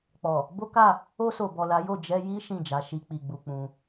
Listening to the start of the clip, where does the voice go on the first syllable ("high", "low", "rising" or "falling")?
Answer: low